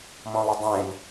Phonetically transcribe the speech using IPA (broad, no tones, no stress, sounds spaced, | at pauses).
m ɔ̃ lˠ ʊ dˤ ẽ n